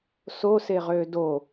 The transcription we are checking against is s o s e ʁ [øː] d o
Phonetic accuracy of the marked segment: correct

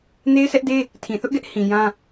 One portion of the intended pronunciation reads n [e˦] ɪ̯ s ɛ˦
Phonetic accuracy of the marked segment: correct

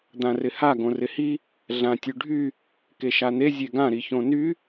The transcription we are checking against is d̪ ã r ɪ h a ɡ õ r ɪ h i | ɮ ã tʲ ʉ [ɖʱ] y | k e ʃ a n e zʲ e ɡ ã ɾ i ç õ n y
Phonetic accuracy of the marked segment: correct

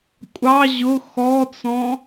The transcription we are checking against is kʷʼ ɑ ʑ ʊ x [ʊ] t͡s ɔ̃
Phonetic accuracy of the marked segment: incorrect: ɔ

